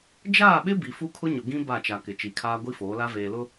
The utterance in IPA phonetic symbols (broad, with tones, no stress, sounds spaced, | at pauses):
d͡ʒ aː˦˨ ɓ ɪ˦ b i˨ f u˦ kʰ ʊ˦ ɲ ʊ˨ ɡ ĩ˦ b a˦˨ t͡ʃ a˨ k ɪ˨ t͡ʃ i˨ kʰ aː˦ ɡʷ i˦ f oː˨˦ l a˦ v eː˨ l ʊ˦